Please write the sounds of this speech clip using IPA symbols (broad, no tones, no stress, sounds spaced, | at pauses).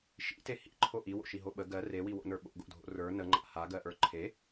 ʃ ḭ t e h ḭ ǃʰ o ʔ i w o̰ ʃ i ɦ o ɓ ə ɡ ɜ r e w i w o̰ n ə˞ ɓ o̰ ɡ o̰ dʱ o̰ r ə˞ n ə ŋ͡ǃ a̰ h a ɡ ɜ ʔ ə˞ ǃʰ e